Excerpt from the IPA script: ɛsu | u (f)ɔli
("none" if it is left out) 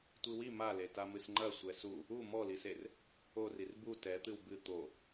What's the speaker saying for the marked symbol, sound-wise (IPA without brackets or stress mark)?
m